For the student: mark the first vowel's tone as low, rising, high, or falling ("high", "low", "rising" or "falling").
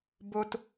high